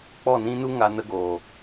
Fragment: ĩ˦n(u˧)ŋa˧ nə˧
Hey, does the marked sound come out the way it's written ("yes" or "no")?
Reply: no